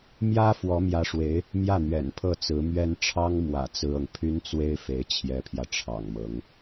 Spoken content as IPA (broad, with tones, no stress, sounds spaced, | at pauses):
m j ä˥ f w ɔ˧˥ m j ä˧˥ ʂ w e˧˥ ɪ̯ | m j ä˥˩ n̪ ɥ ɛ̰˨˩ n pʰ ɤ˥˩ t͡s ɹ̩˧˥ m ɥ ɛ˥ n ʈ͡ʂʰ ɑ˥ ŋ m w ä̰˨˩ t͡s ɹ̩˥ ɤ˨ ŋ pʰ y˥ n t͡s w e˥ ɪ̯ f e˧˥ ɪ̯ t͡ɕʰ j ɛ˧˥ pʰ j ä˧ ʈ͡ʂʰ ɑ̰˨˩ ŋ m ɤ˧˥ ŋ